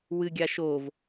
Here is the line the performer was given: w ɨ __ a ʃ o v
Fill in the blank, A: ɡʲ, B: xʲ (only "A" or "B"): A